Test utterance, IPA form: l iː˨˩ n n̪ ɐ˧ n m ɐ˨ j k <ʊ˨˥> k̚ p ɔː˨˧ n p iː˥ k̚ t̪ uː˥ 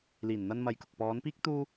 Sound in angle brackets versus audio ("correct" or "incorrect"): incorrect